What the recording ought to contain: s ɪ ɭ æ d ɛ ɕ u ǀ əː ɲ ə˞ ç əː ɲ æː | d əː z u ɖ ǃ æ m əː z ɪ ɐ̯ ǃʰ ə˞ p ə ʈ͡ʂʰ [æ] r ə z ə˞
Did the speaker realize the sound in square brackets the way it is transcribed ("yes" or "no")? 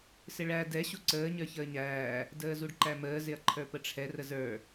no